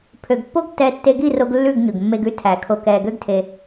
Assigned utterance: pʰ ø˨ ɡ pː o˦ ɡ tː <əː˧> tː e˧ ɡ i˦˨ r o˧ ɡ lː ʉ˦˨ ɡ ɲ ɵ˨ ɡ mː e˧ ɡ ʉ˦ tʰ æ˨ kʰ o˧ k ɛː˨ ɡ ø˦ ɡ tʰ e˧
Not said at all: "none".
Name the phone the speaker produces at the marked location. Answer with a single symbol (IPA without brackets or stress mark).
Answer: ɛː˧